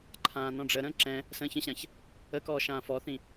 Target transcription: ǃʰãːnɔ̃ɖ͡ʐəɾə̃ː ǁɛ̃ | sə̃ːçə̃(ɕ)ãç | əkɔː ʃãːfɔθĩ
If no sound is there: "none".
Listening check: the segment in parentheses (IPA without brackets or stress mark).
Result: ɕ